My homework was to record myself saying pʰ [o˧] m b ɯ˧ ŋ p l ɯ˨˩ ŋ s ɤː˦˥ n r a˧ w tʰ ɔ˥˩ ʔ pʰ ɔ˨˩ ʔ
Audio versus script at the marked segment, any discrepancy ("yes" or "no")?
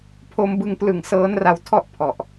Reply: no